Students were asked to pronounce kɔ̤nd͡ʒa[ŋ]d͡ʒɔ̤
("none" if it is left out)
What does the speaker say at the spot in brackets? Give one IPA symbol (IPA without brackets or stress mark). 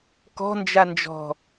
n